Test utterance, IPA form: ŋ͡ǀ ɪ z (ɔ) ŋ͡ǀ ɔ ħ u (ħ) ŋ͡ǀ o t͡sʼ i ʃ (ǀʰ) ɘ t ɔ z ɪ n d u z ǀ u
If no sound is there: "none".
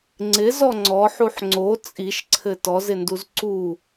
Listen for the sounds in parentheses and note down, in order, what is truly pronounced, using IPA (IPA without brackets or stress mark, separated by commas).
ɔ, ħ, ǀʰ